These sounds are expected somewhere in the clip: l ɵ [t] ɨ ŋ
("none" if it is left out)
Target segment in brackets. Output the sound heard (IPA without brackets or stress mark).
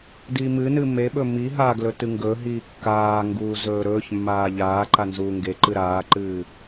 t